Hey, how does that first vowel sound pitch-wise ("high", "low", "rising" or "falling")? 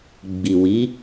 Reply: low